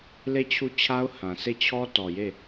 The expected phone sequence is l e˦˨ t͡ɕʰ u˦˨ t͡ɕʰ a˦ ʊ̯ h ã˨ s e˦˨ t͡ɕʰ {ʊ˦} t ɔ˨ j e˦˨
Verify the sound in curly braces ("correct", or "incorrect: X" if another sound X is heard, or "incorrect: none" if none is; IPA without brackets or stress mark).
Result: incorrect: ɔ˦